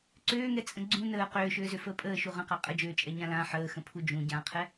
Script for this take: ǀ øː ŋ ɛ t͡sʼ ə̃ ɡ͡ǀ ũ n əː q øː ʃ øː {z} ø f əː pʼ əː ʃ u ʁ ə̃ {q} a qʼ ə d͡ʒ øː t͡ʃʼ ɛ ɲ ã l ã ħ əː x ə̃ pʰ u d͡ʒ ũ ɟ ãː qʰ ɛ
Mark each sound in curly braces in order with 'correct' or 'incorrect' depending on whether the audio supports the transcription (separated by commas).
correct, correct